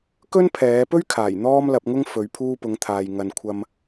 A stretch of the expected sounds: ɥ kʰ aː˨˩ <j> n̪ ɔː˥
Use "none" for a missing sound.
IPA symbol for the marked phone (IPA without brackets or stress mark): j